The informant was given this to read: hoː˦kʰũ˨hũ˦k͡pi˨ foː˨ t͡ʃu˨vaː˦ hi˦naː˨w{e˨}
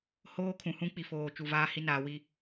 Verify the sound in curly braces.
incorrect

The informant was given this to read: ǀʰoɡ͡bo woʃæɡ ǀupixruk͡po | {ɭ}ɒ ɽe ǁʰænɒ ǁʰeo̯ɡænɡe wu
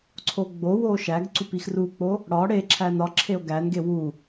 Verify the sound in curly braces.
incorrect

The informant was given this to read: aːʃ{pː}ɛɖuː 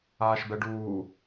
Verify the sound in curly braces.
incorrect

